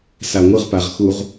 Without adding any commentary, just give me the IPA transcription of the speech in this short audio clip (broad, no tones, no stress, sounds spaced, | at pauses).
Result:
s a ŋʷ ɯ ʁ p a ʁ x u ʁ